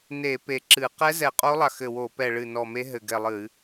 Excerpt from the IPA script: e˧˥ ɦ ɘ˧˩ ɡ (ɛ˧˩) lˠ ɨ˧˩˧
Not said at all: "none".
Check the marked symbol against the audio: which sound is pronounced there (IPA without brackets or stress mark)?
ɛ˧˩